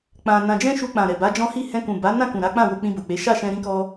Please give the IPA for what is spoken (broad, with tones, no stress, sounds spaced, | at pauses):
k͡p ã˧ n ã˧ d͡ʒ ɛ̃˦ ʃ u˧ k͡p ã˨ ɾ ɛ˨ b a˨˦ d͡ʒ ɔ̃˦ h i˦˨ h ɛ̃˧ k ũ˨ b a˨˦ n ã˦˨ k ũ˨ ɾ a˨˦ k͡p ã˦˨ w o˧ k͡p ĩ˧ b o˨ k͡p e˨˦ ʃ a˦˨ ʃ ɛ̃˧ ɾ ĩ˦ k ɔ˦